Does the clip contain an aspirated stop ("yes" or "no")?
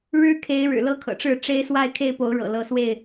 yes